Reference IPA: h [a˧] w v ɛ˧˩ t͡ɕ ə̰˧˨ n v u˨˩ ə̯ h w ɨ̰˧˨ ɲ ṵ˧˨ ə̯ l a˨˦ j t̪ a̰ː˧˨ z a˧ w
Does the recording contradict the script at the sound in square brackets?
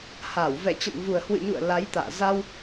yes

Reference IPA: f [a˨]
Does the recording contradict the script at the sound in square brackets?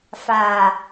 no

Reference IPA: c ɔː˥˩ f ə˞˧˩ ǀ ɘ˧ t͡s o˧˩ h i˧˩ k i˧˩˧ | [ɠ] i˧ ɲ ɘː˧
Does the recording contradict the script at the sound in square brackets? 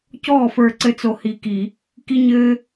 yes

